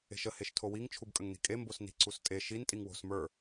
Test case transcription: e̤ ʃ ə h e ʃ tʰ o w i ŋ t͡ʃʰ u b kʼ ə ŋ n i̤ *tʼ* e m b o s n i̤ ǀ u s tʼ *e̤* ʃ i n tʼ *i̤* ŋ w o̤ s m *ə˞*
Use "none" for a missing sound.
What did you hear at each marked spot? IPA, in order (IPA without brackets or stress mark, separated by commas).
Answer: kʼ, e, i, ə˞